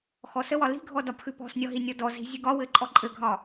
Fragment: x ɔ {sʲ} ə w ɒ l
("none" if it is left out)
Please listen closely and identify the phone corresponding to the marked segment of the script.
s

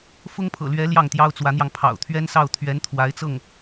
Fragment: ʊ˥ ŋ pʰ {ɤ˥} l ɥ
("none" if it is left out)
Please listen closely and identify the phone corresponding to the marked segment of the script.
ɤ̰˨˩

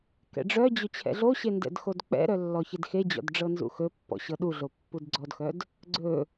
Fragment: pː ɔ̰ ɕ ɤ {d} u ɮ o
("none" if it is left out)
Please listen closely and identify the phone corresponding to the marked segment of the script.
ɗ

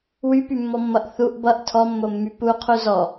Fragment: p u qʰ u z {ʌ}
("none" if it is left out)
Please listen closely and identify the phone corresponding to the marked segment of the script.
ɔ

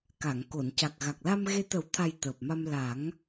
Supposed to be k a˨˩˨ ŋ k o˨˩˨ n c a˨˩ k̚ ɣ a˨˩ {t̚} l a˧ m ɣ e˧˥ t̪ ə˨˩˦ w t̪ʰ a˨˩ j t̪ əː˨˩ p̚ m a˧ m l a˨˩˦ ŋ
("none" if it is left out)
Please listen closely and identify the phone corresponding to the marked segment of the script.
k̚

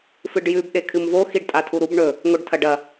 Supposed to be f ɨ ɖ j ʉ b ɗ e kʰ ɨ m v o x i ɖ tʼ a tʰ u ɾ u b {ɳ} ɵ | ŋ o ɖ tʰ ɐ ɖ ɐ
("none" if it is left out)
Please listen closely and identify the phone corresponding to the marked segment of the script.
ɳ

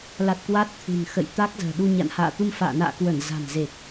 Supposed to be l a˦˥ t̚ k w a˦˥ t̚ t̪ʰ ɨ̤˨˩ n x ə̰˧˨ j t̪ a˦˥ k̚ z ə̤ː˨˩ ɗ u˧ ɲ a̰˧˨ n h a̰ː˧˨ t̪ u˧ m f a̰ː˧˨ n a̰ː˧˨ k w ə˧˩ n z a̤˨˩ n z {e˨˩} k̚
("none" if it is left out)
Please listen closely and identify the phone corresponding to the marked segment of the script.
e˨˩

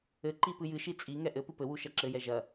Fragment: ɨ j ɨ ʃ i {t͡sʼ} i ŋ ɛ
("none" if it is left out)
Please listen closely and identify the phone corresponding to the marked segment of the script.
t͡sʼ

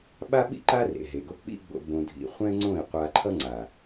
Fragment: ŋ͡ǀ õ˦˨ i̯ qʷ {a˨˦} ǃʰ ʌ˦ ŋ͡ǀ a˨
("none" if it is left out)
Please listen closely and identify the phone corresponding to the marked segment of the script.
a˧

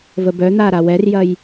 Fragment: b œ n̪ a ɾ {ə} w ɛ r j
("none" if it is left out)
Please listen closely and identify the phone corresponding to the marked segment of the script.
a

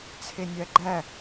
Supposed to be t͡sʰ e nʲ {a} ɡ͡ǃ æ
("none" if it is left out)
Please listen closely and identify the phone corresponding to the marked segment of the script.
æ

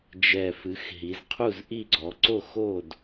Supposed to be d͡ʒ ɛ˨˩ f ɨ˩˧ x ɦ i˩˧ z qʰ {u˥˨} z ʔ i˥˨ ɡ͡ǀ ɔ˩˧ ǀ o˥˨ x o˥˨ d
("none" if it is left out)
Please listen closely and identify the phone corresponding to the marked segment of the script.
u˥˨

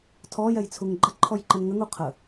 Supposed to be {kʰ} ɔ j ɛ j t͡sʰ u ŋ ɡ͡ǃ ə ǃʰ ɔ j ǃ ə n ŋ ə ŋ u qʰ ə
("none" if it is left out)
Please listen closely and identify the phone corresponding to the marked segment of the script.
tʰ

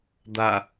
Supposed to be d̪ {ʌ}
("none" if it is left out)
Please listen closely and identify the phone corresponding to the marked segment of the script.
a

